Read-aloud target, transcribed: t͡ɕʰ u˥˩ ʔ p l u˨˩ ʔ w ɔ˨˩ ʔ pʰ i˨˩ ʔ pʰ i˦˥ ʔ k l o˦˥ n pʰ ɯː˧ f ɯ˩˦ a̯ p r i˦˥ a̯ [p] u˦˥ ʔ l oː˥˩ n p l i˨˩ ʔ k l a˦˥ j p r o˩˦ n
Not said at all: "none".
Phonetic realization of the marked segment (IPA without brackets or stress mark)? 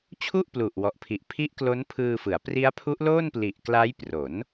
pʰ